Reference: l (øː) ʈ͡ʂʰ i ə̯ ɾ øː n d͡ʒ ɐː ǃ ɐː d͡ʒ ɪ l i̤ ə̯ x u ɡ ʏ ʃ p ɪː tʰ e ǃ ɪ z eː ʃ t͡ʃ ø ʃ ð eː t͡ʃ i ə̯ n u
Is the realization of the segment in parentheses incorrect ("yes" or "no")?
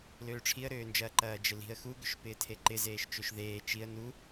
no